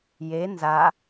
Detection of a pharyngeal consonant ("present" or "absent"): absent